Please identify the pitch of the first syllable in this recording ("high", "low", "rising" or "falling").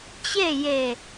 falling